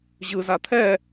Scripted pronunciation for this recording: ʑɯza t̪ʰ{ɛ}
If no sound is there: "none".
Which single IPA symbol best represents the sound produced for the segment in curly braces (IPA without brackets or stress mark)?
ɛ